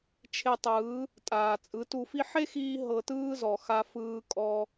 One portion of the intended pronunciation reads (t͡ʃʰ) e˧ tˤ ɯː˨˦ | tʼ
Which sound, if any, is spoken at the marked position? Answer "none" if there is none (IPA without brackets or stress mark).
t͡ʃʰ